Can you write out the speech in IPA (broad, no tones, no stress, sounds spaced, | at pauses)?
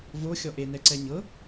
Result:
v o xʲ ɔ ʔ e n ɛ ǀ ɛ ɲ ɤ